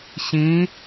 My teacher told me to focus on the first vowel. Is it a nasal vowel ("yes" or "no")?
yes